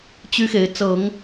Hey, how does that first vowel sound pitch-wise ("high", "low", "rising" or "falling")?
high